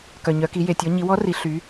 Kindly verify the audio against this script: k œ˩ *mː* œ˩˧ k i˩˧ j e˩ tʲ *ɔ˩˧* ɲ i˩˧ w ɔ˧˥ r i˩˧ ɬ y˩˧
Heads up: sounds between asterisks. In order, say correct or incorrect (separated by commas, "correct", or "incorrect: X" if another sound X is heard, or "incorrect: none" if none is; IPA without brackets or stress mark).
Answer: incorrect: ɲ, correct